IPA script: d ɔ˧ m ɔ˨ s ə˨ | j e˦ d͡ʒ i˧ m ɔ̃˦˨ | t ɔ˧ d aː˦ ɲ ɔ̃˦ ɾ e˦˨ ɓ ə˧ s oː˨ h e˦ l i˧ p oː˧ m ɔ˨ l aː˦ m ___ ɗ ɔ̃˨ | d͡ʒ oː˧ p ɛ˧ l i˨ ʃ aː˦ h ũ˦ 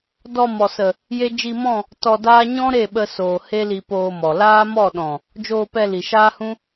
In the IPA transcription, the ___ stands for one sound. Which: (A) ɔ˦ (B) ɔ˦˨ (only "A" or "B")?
B